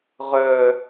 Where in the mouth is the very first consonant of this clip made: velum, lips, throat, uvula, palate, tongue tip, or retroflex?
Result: uvula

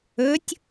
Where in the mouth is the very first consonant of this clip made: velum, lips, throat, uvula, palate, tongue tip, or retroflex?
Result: tongue tip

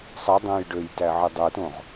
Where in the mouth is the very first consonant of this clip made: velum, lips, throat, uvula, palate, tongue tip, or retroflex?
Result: tongue tip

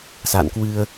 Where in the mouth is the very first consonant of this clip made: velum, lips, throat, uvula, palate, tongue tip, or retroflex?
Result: tongue tip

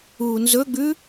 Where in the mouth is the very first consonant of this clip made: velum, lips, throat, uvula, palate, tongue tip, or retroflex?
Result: tongue tip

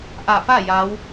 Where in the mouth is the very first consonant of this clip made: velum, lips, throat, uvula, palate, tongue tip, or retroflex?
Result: throat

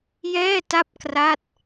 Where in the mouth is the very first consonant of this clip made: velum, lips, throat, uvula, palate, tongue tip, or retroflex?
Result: palate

